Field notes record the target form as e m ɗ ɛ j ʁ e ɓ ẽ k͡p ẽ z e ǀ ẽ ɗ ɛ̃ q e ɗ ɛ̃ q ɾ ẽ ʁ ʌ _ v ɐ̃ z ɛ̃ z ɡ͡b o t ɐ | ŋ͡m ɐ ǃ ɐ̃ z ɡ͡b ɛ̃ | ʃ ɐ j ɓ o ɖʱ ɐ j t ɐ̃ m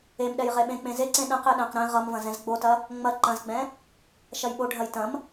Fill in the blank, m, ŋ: m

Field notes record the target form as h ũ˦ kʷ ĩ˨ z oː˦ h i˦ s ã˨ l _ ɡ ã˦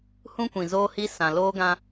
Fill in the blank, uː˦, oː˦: oː˦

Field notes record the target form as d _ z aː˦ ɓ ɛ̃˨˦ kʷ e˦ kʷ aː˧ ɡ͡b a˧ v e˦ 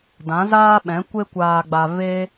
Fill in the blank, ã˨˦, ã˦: ã˨˦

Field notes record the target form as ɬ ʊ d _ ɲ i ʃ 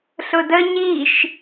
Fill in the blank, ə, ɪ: ə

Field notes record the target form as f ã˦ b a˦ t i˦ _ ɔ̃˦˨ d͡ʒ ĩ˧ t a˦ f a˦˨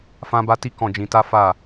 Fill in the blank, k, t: k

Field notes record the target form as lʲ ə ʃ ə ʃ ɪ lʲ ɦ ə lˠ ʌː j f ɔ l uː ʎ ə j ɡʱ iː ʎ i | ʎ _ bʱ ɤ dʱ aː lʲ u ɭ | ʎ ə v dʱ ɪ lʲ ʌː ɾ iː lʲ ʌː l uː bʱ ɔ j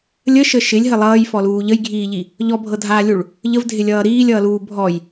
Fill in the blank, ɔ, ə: ɔ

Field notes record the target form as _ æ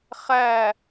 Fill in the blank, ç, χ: χ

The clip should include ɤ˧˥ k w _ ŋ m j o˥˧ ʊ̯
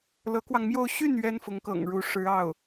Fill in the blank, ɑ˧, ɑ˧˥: ɑ˧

